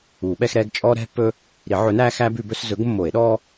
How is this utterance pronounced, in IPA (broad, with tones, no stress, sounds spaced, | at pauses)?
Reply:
uː˨˩˦ ɓ ɛ˦ x ɾ ɛː˦ ɡ t͡ʃʼ ɔ˦ ɾ ɛ̤˦ pː ɵ˦ | ɾ i˨˩˦ ʕ ɵ˨˥ n æː˦ x æː˦ b ʉ˨˩˦ b ɵ˨˩˦ s z ɵ˨˥ ɡ mː o˨˩˦ e̯ ɗ ɔ˦